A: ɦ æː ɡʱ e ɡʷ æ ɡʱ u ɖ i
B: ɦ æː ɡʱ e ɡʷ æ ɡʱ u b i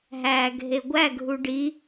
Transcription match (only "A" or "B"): A